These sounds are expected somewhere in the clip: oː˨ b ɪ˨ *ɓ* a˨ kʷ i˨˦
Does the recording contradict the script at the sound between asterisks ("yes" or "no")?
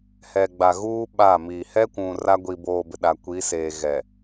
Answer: yes